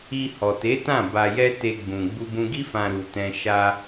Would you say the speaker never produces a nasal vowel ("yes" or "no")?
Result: no